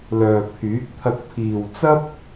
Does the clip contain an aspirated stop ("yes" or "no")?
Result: yes